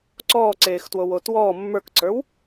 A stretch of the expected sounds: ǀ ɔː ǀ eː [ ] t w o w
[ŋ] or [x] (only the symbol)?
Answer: x